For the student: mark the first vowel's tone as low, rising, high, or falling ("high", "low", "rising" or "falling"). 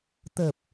low